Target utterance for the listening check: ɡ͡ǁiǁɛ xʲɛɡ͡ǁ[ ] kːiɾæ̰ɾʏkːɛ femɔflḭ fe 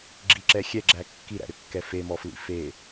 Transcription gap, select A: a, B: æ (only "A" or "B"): B